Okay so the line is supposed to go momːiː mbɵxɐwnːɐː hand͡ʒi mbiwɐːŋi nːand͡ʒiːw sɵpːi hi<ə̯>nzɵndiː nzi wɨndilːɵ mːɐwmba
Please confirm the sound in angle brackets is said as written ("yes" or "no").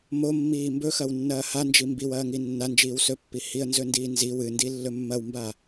yes